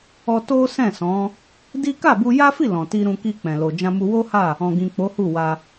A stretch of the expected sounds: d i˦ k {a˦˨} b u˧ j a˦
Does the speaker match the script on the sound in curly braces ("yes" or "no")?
yes